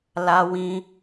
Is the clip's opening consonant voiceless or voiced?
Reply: voiced